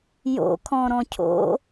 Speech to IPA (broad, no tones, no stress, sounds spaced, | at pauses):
j o̰ kʰ ɔ̃ ɾ ɔ̃ cʰ o̰